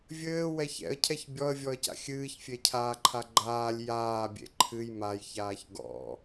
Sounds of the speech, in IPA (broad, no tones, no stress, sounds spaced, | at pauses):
vʲ ɘː w ɛ ç ɛ̰ ə̯ cʰ ɛ ç bʲ ɔ ə̯ vʲ ɔ ə̯ c a̰ xʲ ɨː ç fʲ e cʰ aː ǃʰ a ɡ͡ǃ aː lʲ j aː bʲ ḛ ǃʰ ɨ j m a j ç aː ç ɡ ɔ̰